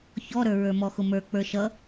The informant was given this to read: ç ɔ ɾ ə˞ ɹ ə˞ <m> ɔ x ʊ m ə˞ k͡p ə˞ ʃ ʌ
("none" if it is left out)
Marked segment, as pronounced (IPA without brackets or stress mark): m